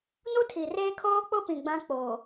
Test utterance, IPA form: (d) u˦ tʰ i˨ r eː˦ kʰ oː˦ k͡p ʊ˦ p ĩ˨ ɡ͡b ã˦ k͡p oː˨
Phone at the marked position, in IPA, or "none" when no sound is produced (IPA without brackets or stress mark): n